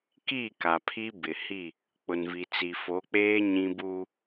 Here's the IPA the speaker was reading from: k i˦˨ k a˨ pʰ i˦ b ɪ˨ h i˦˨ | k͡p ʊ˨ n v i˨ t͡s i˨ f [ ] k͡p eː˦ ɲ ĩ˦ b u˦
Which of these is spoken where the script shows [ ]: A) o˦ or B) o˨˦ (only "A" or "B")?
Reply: B